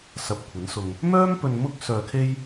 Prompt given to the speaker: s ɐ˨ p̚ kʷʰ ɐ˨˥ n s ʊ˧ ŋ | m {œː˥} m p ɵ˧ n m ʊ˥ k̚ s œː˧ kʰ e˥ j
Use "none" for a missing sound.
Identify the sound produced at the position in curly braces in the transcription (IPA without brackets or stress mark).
œː˥